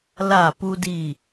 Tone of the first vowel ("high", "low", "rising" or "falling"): falling